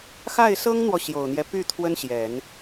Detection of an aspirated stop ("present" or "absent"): present